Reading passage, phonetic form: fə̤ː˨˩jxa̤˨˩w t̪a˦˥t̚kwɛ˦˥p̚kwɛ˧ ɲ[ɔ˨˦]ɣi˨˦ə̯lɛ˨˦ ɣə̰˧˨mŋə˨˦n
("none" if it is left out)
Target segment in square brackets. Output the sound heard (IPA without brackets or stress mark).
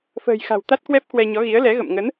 ɔ˨˦